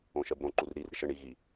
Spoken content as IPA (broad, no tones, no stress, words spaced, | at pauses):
õʃɜbɾõ ǃurɾir ɾɪʃə ɳi ɣi